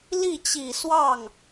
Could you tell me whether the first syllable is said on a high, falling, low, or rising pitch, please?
falling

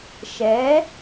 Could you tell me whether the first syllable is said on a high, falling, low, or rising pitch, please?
rising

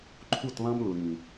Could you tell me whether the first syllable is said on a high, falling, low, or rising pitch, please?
falling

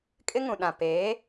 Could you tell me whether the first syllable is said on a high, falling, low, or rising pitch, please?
high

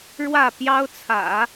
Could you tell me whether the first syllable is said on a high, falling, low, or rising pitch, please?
falling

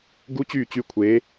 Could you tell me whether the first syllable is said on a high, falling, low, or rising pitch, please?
rising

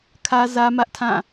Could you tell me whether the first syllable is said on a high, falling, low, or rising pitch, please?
high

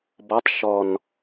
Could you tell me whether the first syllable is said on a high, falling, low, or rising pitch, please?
rising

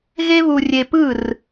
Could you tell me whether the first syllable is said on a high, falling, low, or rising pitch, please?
high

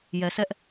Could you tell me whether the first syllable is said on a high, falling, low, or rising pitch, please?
low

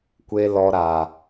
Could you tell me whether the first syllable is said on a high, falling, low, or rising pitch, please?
high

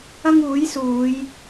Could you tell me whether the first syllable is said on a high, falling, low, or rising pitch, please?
high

